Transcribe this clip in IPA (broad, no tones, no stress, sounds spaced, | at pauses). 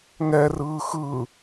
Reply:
ŋ ɛ r ɯː x ɯ